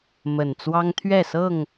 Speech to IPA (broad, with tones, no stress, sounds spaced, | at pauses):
m ə˨˩ n t͡s w ɑ˦ ŋ t̪ʰ ɥ ɛ˥˨ s ɤ˥˨ ŋ